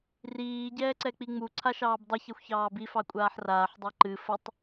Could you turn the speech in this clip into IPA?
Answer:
r iː ɟ ɛː ǀ ɛ k͡p i ŋ͡m u ǀʰ a ʃ ɑː b dˤ ɨ ç ɛ xʷ ç ɑː b i f ɑ kʷʼ aː ħ r aː ħ dˤ ɑ ǃ ɨ f ə tˤ

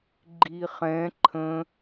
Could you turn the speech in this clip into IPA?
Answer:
ɡ͡ǃ i χ ɛ̃ ǃʰ ə̃

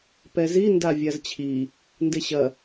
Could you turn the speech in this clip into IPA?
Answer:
p ɛ z i n d a vʲ a z t͡ɕʰ i | n d e ɕ ɐ

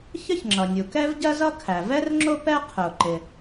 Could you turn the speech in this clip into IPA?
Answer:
ç ə˥ ç ŋ͡ǁ ʌ˩ nʲ u˩ k ɛ˥ v ɟ ɜ˥ z ʌ˥ kʰ æ˩ v ɛ˥ r ŋ͡ǁ ʊ˥ p ɛ˥ qʰ ʊː˩ ǃ ɪ˩

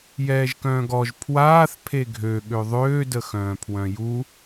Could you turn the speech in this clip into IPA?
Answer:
j ɛː ʒ k œ̃ː ɡ ɔ ʒ pʰ w aː θ pʰ e ɡʱ ø ɠ ø ðˤ øː d ə x œ̃ː pʰ w œ̃ j u

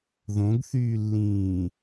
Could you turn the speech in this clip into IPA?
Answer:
ð õ ɡ θ yː lː ĩː

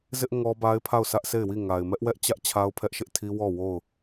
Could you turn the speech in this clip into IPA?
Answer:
z ɪ˦ ʔ ŋ ɔ˦ b a˦ ɪ̯ pʰ a˦˨ ʊ̯ sʰ ä˦ ʔ sʰ e˦˨ ɪ̯ w i˦˨ ŋ a˨ ɪ̯ m ɛ˦ ʔ w ɛ˦ ʔ t͡ɕ ä˦ ʔ t͡ɕʰ a˦ ʊ̯ pʰ ɛ˦ ʔ ʃ ɪ˦ ʔ tʰ i˦ w ɔ˦˨ w o˦˨ ʊ̯

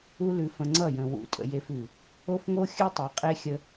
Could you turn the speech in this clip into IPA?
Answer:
u˦ l ʉ˧ f ə̃˧ ŋ͡ǀ ʌ˦˨ j ə̃˨ w ṵ˨˦ tʼ ə̰˨ j e˧ f ʉ˨ | o˦ f ŋ o˦ xʲ ʉ˦ tˤ e˨ qʼ e˦ xʲ ə˦

